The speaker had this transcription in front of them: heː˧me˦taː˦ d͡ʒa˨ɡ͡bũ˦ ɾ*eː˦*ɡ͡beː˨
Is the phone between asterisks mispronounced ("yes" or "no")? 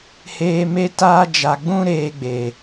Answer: yes